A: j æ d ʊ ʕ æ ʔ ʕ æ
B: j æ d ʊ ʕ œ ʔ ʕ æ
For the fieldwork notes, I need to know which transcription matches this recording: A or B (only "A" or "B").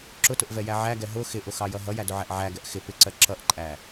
A